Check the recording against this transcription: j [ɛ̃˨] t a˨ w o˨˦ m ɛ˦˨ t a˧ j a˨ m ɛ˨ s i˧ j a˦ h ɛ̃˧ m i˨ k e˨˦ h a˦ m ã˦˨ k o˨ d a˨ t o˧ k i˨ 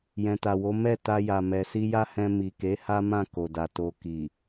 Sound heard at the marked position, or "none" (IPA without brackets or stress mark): ɛ̃˨